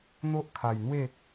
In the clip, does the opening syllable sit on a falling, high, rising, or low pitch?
high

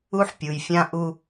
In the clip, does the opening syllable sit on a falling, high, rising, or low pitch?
high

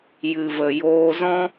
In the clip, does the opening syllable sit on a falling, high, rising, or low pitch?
low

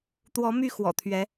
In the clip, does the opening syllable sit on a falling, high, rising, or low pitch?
rising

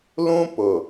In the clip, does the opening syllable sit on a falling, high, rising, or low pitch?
high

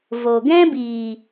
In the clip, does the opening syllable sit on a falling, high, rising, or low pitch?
low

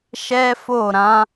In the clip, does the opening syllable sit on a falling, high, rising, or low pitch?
high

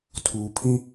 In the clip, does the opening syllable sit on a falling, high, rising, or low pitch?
low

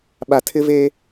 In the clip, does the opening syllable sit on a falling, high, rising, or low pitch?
low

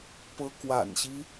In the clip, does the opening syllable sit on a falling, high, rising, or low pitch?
high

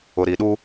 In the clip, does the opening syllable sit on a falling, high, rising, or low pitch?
low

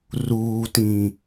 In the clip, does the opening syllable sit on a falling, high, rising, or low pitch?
low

